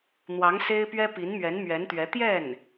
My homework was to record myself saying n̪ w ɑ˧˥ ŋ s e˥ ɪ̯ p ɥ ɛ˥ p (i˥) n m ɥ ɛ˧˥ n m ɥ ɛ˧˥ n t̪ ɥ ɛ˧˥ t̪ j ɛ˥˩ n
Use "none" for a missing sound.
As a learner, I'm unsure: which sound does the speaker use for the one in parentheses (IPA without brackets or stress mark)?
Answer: i˧˥